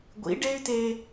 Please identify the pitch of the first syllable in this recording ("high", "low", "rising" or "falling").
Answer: rising